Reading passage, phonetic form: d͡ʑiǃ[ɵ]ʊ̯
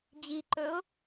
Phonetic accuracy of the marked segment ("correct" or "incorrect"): correct